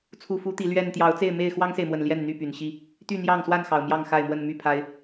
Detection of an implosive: absent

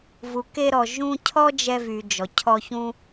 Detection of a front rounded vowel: present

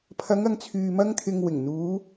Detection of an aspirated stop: present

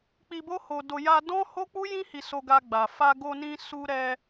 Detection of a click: absent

